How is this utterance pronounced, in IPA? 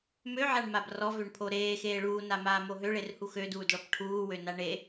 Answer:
møʕaɳmab rɔvøɳpʰo ɾeːxeː ɭuːnamaːmo ɦøɭerhu xøduːdɭɔp ʈʰuːwøna ɳe

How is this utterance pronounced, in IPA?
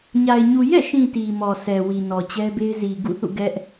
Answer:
ɲa˨ɪ̯ ɲu˨jɛ̰˦˨ʃĩ˨ ti˨mɔ˨sɛ˨ wi˨nɔ˨t͡ɕɛ˦be˦ɪ̯ zi˨ɡṵ˦˨θṵ˦˨ ɡɛ˦ʔ

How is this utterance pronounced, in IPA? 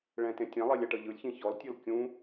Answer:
ɭɛ̃tẽ tʲɛ̃lˠelʲa ʈɤʎɯlʲçĩ çɔltʲɤl kʲũ

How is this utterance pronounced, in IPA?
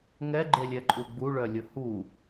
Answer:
ŋɛɡ͡ǃelʲɛǃʼu ɡ͡buɭœlʲʊ hu

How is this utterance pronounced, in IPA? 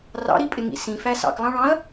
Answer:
rɑ̰ɾipʼɪŋḭ sĩfæ sɑ̰klˠɑ̃ɭɑ̃ɐ̯

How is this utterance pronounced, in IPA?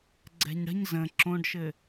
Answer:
ɡ͡ǀɛ̤ɲɽə̤ɲ zə̃ ǁõɖʃɘ

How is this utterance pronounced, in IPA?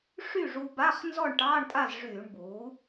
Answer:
ʂy˥˨ʐu˧ ba˧˥˧χ nzɔ˥˨ɳʈɑː˧˥˧ɳtʼa˥˨zʐyː˧˩˧ɳ buː˩˥

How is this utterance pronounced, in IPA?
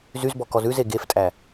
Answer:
zyzbɔ kɔzʉze ɡeftʼæ

